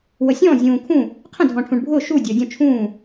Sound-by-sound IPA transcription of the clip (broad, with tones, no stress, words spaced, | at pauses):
wə˨sʲɔ̃ː˥˨ zʲũː˨kʰũ˥˨ | qʰə̃˥˨dʱɔ̃˨ʈʰũ˨ɳbʱʊː˥˨ ʃuː˥˨dʲʊː˨dʲɔ̃˥˨ t͡ʃʰũː˥˨